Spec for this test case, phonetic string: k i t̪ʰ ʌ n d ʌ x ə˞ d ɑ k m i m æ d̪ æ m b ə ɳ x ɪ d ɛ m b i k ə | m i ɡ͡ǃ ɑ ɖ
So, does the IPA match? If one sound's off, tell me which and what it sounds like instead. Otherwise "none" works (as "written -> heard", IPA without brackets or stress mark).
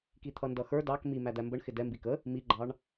ɖ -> ɳ